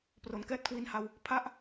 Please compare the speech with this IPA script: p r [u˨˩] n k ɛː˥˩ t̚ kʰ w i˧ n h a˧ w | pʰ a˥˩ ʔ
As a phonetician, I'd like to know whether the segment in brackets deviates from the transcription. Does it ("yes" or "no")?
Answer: yes